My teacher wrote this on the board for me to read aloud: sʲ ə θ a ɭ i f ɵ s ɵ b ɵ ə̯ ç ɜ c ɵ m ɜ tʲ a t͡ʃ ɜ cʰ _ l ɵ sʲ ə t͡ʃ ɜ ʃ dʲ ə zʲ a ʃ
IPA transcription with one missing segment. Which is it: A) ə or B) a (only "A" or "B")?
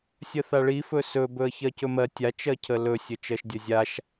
A